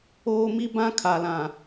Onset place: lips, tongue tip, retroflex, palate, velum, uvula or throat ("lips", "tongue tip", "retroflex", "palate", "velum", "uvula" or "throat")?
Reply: lips